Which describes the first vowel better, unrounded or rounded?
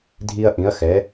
unrounded